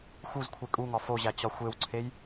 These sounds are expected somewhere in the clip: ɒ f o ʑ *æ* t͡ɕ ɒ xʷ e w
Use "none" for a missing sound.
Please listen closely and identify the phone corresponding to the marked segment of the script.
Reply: æ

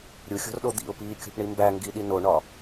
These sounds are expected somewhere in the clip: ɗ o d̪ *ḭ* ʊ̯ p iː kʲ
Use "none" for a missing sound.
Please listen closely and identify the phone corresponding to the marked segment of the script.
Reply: ḭ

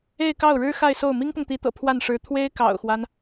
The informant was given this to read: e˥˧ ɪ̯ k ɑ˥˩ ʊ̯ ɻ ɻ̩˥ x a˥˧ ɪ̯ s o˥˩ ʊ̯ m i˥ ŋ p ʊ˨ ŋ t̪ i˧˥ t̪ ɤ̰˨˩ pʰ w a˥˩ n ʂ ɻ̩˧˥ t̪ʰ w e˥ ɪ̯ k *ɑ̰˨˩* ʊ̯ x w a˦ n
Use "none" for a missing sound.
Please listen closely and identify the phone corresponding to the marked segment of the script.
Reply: ɑ̰˨˩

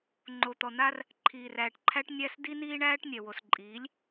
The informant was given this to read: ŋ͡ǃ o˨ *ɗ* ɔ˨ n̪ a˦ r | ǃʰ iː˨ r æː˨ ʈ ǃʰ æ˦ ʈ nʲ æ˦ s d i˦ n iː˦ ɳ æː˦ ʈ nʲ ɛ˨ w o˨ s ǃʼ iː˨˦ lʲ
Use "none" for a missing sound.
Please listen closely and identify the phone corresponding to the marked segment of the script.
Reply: t̪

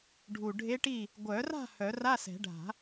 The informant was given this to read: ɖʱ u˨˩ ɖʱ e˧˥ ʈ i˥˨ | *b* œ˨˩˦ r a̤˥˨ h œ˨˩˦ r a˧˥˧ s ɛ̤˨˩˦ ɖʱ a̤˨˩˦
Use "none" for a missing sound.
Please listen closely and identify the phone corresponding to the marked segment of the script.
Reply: ɡʷ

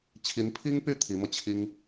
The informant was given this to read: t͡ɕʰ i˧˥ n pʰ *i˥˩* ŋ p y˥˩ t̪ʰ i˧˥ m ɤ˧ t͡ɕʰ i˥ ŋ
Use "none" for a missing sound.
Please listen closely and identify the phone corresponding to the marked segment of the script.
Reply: i˥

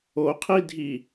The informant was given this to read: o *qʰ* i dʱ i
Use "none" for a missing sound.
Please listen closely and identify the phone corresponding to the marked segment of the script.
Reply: qʰ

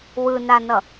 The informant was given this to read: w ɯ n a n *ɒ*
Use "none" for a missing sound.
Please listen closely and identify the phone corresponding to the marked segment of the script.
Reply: ʌ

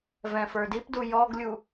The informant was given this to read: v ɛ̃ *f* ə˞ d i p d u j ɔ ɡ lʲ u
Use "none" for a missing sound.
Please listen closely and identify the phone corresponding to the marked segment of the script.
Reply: f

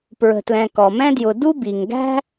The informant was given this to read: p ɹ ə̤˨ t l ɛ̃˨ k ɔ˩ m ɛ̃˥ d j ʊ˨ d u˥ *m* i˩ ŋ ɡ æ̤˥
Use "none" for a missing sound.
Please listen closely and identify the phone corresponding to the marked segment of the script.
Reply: b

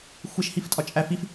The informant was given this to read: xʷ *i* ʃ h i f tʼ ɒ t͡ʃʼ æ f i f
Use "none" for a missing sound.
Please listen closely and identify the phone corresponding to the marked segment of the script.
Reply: e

